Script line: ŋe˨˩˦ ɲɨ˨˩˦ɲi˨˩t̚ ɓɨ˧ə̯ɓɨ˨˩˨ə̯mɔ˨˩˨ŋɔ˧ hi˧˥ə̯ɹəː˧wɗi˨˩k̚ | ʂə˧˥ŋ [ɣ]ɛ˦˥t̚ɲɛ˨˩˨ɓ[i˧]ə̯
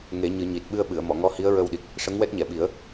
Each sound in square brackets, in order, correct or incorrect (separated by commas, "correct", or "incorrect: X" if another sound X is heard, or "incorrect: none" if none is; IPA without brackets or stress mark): incorrect: w, incorrect: i˨˩˦